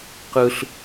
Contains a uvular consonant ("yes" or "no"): yes